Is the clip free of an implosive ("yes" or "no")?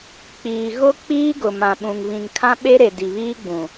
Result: no